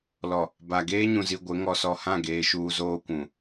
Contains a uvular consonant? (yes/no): no